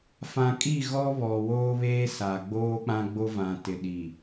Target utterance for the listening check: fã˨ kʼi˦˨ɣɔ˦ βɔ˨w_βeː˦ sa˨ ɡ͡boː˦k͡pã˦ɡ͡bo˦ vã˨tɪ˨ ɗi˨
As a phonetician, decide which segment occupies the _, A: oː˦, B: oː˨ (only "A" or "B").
A